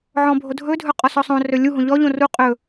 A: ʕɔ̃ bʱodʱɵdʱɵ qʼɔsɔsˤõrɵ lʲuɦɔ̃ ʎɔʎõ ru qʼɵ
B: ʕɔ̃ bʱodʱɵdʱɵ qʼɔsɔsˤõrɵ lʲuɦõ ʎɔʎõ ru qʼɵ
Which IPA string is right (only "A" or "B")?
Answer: B